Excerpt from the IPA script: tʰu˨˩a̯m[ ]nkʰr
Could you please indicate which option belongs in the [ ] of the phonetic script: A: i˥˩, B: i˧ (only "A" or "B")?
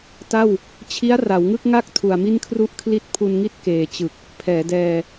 A